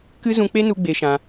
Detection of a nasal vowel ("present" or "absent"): present